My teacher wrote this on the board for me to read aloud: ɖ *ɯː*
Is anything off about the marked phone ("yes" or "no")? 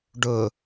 yes